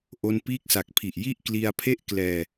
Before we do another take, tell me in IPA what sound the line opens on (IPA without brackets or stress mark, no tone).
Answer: ʔ